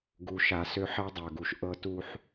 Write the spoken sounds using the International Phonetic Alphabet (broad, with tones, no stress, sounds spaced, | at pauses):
ɡ u˨ ʃ a˨ s ø˦ ħ ɜ˦ dˤ ɜ˨ ɡ u˨ ʃ ʔ ɤ˦ t u˦ ħ